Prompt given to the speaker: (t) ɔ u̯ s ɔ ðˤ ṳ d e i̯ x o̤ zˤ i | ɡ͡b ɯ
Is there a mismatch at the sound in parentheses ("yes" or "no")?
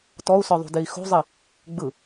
no